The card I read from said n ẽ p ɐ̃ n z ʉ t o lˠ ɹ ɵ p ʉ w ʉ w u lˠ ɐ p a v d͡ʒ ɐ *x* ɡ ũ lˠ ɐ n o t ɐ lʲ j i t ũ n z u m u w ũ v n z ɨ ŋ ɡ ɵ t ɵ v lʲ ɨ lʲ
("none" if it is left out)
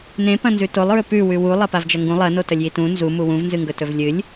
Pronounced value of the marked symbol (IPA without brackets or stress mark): ŋ